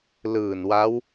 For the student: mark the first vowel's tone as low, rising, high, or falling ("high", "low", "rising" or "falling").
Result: low